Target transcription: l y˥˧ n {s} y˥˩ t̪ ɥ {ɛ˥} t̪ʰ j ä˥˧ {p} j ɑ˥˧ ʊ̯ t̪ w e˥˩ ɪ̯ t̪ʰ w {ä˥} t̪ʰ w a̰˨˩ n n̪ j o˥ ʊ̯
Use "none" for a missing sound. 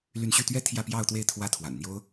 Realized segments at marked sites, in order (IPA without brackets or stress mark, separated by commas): ɕ, ɛ˥, p, ä˥